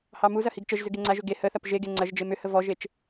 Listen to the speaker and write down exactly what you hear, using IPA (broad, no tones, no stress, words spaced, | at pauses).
hɑmuzɐ hiɡt͡ʃəʒzʏ ɡeŋ͡ǀaʒʏ ɡe həθɐp ʒeɡe ŋ͡ǀɐʒd͡ʒe mʏ həvɔʒet͡ʃ